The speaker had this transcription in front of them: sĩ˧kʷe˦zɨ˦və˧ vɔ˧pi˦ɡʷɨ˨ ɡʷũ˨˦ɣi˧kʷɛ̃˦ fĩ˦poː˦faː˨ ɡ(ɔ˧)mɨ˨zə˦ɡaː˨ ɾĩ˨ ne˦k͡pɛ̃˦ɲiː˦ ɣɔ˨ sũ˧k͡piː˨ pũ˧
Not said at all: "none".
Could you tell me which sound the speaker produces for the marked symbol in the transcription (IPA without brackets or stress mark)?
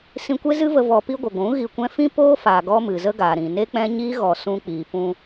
ɔ˦